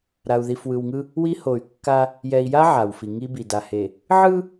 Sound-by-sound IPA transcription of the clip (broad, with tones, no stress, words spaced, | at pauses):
ɾa˨u̯ði˨fwɯ˨wŋɯ˦ | wi˦ho˨y̯kːa˦ | jɛ˨i̯ja˦ ʕa˨wfi˨ ŋi˦bi˨da˨he˨ | ʕɯ˦